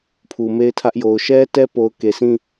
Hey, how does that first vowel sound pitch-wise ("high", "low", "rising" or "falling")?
low